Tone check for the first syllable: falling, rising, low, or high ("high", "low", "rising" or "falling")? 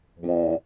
low